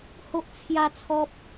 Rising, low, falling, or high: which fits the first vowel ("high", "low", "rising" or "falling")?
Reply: high